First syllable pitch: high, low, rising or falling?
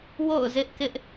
falling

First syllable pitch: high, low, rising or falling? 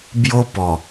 high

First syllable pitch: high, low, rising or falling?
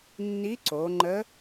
rising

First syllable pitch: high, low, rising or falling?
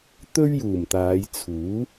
high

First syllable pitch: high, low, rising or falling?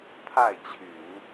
falling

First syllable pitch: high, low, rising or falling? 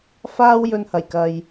high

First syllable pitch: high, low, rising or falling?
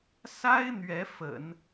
high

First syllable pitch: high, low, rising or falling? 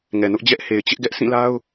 low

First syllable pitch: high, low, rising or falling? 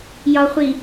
low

